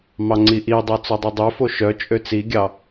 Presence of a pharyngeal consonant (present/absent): absent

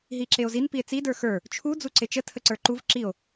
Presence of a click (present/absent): present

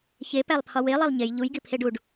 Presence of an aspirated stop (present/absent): present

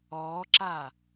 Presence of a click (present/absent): present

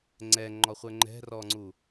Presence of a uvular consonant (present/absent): present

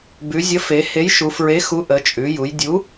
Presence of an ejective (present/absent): present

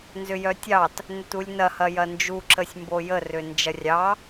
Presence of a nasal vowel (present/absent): absent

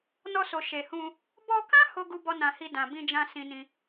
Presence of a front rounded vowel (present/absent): absent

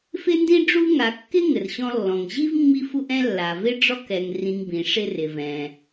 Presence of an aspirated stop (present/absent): absent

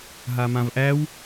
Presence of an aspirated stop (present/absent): absent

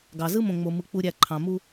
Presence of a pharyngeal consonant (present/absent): absent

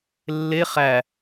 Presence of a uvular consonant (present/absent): present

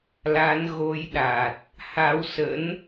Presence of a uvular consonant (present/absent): absent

